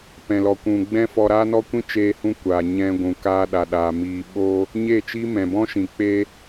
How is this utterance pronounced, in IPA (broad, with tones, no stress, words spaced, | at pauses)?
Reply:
pɛ̃˧lɔ˧kʷũ˧ ɡ͡bɛ̃˦fɔ˧ɾaː˦nɔ˦ kʷĩ˦t͡ʃeː˧hũ˧ kʷaː˨ɲɛ̃˧ ɡʷũ˨ kaː˧ɗa˨ ɗaː˨ miː˨ɓoː˧ | ɲe˦˨t͡ʃi˦ mɛ̃˨ bɔ̃˦ʃĩ˨ k͡pe˧